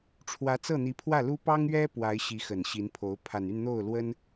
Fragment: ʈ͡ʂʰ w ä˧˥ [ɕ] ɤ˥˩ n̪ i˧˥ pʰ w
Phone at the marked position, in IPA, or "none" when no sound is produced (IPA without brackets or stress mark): t͡s